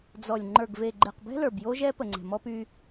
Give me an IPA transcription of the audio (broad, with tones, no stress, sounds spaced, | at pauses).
d͡z ɔ˨ lʲ ŋ͡ǃ ə˞˨ ɡ v e˨ ɡ͡ǃ e˨ q b ɛ̤˦ l ə˞˨ b j o˦ ʒ ɛ˦ p ə˨ ŋ͡ǀ ɛ̤˨ m ɔ˦ p y˦